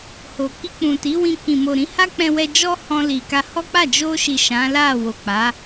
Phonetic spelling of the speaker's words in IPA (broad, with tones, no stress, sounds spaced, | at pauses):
h o˨ k i˧ k͡p ũ˨ t i˨˦ w ĩ˧ k ĩ˨ m o˨ ɾ ĩ˨˦ h a˦ k͡p ɛ̃˧ w ɛ˧ d͡ʒ ɔ˦ h ɔ̃˧ l i˨ k a˧ h ɔ˦ k͡p a˦˨ d͡ʒ o˧ ʃ i˨ ʃ ã˨˦ l a˦˨ w o˨ k͡p a˨˦